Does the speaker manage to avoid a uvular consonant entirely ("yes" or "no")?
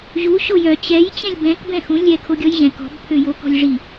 yes